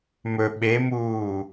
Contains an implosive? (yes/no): yes